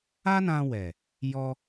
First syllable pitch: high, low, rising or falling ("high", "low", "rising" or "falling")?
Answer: high